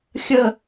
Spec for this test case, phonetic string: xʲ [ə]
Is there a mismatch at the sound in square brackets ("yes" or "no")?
no